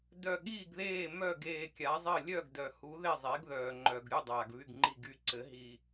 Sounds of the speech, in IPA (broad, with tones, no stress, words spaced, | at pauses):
dœ˧˩ɠiː˥˩ɡðeː˥˩ mœ˥˩ɡeː˧˩kʲa˩˥zˤɘ˥˩ lʲœ˥˩ɡdœ˩hu˩˥ ðe˥˩zˤe˩˥ɡðœː˩ ŋ͡ǃœ˩ɡɾʲu˥˩ dˤaː˩ɡβy˥˩ɡŋ͡ǃi˥˩ɡy˥˩ ǀɘ˩˥ ɦi˧˩